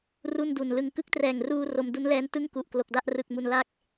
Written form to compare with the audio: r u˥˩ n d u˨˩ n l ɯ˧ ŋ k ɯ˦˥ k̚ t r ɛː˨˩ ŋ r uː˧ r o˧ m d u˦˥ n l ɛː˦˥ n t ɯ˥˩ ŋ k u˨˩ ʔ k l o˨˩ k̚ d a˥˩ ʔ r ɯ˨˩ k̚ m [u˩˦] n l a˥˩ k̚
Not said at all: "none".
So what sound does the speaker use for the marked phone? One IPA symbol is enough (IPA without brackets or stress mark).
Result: u˨˩